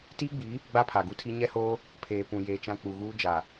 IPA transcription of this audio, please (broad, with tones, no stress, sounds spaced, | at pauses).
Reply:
t iː˦ ɡ͡b i˨˦ | ɡ͡b a˦ pʰ a˨ ɡ u˦ tʰ i˦ ɲ ɛ˦ h oː˦ | pʰ eː˨ p ũ˨ j eː˦ t͡ʃ ã˦ k͡p u˨ ɣ uː˦ d͡ʒ a˨